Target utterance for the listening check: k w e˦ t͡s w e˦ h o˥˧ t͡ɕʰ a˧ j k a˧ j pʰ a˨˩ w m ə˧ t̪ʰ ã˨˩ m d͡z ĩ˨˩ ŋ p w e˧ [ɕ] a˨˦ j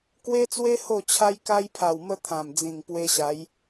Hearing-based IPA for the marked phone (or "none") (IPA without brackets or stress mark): ɕ